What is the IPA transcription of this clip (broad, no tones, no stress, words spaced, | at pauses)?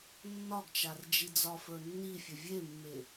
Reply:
nːɒɡt͡ʃard͡ʒi d͡zɒfə˞nːifʲə vʲemːe